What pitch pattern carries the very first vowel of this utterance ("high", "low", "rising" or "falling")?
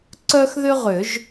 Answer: high